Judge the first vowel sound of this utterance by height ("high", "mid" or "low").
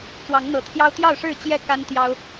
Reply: low